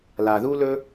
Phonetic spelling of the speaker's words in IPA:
l a˨ ð u˦ l ɵ˦

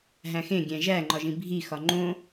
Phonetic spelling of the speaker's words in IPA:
ɦ æ̃ x ẽ ɡʲ æ̃ ʒ æ ŋ͡ǃ ɒ ʒ ĩ bʱ i x ɒ ŋ͡ǃ õ

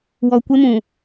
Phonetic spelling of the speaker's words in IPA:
w ɔ˨ kʷ ɪ˦ m ũ˨

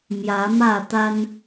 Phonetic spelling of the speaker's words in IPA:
m j ä˨˦ m ä˥˨ t̪ a˦ n

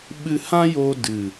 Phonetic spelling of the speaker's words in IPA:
ɓ ɨ˧ h ã˦ j o˧ d ɨ˨

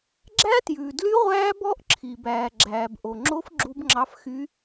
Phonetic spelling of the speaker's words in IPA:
ɡ͡ǁ æ˦˥ t j ʉː˨ d l y˦˥ ʁʷ æː˦˥ b ɔ˦˥ ʔ ǁʰ i˨ b æː˨ ɡ͡ǁ æː˨ b ʔ o˨ ŋ͡ǁ o˦˥ f ɡ͡ǁ u˦˥ b ŋ͡ǁ ɑ˦˥ f x y˦˥

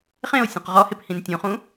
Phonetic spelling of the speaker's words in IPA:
χ ẽ o̯ sʲ ũ q ʁ ɔ h e p h ĩ n tʲ ũ χ ũ

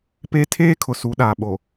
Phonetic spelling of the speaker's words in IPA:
p e˦ tʰ eː˦ kʰ ʊ˨ s u˨˦ ɗ aː˨ ɓ o˨

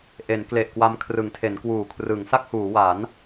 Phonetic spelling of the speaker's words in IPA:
ʔ e˩˦ n k l e˨˩ ʔ k w a˧ m kʰ r ɯ˩˦ ŋ tʰ e˩˦ n k w uː˨˩ kʰ r ɯ˩˦ ŋ s a˥˩ k̚ h uː˩˦ w a˩˦ n

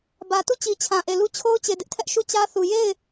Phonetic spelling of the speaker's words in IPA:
b ä˨ t u˦˨ t͡ɕ i˨ t͡ɕʰ ã˨ ʔ e˨ l u˦ t͡ɕʰ o˦ ʊ̯ t͡ɕ e˨ d ɪ˦ ʔ tʰ ɛ˦ ʔ ʃ u˦˨ t͡ɕ ä˦ θ u˨ j e˦˨ ɪ̯

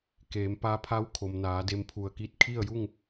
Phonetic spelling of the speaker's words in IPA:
k eː˩˧ m p a˧ pʰ a˧˥ w kʰ o˩ m n aː˩˧ d e˧ m pʰ u˧˩ ə̯ k i˥˨ t̚ kʰ i˥˨ ə̯ j u˥˨ ŋ

